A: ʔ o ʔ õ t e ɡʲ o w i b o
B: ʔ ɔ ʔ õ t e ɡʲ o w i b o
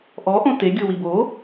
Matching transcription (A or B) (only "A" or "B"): B